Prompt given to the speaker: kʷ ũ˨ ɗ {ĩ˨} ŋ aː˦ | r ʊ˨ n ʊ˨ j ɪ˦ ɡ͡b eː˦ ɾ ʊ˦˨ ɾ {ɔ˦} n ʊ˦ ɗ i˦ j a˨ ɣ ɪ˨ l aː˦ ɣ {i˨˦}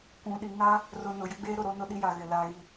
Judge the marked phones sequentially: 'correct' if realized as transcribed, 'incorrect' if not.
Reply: incorrect, incorrect, incorrect

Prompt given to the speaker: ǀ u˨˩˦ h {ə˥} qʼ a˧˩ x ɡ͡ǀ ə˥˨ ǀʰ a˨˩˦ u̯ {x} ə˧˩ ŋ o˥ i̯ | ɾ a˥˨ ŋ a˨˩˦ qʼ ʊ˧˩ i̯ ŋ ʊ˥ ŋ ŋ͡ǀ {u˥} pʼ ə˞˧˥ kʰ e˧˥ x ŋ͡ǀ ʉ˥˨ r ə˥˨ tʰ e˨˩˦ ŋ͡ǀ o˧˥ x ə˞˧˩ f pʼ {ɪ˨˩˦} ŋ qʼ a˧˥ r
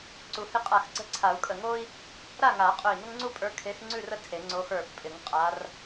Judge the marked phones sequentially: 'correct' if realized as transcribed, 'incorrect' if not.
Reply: incorrect, incorrect, correct, correct

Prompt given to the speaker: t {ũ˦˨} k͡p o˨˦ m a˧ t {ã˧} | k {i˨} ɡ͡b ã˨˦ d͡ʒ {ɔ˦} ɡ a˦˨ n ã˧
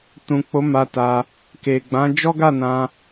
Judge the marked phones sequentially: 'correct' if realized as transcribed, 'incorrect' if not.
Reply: incorrect, incorrect, incorrect, correct

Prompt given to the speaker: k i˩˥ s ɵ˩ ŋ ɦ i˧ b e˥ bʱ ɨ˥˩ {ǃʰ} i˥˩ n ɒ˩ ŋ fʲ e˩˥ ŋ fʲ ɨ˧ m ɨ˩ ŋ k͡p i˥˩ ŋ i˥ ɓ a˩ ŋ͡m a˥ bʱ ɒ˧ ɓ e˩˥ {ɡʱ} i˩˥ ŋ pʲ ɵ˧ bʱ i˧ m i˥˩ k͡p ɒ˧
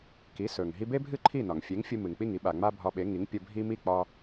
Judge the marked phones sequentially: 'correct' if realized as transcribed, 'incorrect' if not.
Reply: correct, incorrect

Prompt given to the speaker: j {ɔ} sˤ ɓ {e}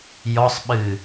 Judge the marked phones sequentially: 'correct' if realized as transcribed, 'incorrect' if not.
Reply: correct, incorrect

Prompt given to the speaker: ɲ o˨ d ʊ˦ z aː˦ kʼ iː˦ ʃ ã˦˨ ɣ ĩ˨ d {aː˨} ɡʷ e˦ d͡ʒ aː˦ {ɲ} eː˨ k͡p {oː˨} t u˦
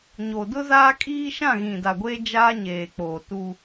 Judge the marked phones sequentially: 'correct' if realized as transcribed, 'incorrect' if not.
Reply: incorrect, correct, correct

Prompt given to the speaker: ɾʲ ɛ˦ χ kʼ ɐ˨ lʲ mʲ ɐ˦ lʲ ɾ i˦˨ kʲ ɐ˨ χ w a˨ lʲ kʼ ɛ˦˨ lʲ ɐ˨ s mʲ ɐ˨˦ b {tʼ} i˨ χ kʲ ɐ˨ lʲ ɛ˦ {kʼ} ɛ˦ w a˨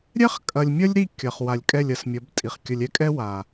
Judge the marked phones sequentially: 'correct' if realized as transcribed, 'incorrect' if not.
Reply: correct, correct

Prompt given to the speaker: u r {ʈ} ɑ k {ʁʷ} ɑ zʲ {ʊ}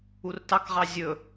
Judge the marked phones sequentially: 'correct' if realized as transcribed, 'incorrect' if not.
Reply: incorrect, incorrect, incorrect

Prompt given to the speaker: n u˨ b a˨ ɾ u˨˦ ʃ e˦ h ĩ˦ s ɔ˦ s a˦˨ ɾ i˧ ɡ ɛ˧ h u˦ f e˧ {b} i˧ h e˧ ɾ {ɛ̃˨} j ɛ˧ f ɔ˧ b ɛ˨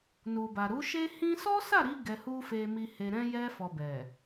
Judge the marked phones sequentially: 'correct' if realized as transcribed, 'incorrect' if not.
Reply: incorrect, incorrect

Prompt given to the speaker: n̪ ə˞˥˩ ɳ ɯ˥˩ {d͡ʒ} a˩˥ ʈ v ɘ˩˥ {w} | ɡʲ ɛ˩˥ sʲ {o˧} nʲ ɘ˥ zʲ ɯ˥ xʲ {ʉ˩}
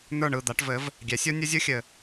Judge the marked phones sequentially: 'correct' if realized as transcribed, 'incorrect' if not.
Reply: incorrect, incorrect, incorrect, incorrect

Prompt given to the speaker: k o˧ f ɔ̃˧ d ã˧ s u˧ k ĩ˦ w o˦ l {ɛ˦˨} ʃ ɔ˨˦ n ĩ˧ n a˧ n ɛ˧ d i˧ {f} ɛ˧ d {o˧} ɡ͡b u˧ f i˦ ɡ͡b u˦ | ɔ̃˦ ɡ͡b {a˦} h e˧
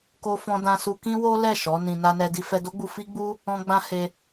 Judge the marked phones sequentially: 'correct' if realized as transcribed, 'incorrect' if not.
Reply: correct, correct, incorrect, incorrect

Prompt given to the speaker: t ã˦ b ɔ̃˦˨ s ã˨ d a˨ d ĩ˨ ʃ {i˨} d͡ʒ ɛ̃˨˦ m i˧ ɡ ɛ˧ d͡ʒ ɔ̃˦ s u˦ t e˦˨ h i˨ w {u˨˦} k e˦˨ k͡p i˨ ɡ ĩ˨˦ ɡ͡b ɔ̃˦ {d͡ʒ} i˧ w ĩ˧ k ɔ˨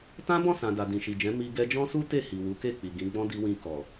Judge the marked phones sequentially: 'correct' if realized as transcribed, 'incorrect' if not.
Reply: correct, correct, incorrect

